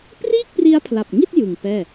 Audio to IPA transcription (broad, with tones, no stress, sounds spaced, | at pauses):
p r iː˥˩ k̚ p r i˦˥ a̯ pʰ l a˨˩ p̚ ŋ i˥˩ t̚ j ɯ˨˩ ŋ p ɛː˥˩